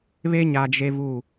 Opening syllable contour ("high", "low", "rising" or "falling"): high